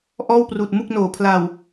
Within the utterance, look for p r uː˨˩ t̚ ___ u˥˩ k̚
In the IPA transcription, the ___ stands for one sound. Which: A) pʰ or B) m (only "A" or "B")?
B